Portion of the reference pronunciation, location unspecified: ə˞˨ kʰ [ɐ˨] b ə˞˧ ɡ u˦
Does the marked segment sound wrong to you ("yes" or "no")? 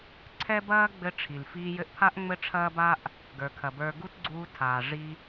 no